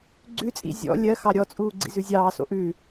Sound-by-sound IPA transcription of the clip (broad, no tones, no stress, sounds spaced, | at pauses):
ɡ͡ǀ ʉ t͡sʼ ḭ zʲ ɔ̰ lʲ ɜ x ɑ ɾʲ ɔ t͡sʼ uː ɡ͡ǀ ḭ z ʉ zʲ ɑː s o̰ ʔ ʉ